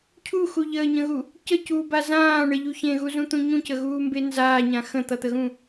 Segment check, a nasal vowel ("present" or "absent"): present